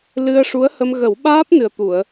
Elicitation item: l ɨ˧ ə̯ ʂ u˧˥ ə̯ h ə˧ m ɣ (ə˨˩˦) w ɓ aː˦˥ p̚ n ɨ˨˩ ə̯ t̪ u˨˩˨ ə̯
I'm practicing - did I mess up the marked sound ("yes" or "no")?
no